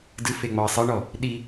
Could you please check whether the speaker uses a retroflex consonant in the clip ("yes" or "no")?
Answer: yes